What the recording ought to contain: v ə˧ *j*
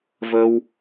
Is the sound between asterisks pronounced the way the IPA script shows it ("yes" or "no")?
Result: no